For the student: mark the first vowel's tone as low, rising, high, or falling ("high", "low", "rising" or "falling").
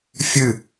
falling